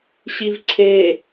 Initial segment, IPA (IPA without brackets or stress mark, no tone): ɕ